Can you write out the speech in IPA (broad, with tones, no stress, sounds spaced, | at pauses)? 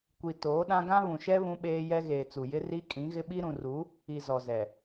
kʷ i˨ t oː˨˦ ɗ ã˦ ɡ ã˦ β ũ˨ ʃ ɛ˦ β ũ˦ ɓ eː˦ j ɛ˦ ɣ eː˨ t͡s u˨ j ɪ˦ r i˦ kʼ ĩ˨˦ ɣ ɪ˦ ɓ i˦ ɾ ũ˨ r u˨˦ | i˨ z ɔ˨ z ɛ˨